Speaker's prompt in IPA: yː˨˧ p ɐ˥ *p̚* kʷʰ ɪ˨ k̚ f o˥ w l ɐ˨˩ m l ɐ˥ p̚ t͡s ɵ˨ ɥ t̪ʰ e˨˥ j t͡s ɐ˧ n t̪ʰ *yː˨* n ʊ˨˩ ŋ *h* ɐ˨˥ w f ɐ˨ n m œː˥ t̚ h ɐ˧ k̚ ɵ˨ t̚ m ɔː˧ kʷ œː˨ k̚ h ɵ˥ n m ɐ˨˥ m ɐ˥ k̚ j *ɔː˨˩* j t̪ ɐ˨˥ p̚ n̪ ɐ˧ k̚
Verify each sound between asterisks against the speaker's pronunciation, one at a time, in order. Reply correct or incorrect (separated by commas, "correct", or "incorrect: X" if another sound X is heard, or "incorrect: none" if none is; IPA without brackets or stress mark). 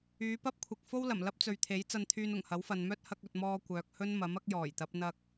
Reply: correct, incorrect: yː˧, correct, correct